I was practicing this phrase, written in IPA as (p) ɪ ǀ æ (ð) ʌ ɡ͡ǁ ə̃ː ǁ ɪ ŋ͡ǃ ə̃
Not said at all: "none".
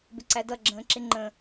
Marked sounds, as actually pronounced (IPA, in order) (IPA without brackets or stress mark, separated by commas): b, d